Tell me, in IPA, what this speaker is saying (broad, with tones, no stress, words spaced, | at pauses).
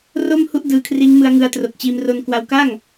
ro˥˩m hu˥˩ʔdɯː˧kʰriː˦˥ŋ mɯ˧a̯ŋɯ˧a̯tro˨˩k̚t͡ɕiː˧m ro˧nkwa˧wka˥˩ŋ